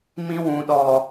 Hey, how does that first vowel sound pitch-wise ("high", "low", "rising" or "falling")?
high